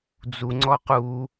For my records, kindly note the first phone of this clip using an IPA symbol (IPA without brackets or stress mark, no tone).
d͡z